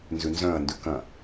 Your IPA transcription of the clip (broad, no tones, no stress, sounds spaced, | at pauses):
n z ʉ n z œ̃ ɐ̯ n d ʉ k ɐ̃